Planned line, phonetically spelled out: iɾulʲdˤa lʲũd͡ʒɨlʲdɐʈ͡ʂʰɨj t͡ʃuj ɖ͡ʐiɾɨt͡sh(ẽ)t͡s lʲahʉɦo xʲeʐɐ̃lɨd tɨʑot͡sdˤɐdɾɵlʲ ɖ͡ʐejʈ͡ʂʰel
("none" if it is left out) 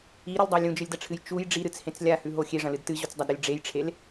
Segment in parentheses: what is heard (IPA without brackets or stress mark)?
ẽ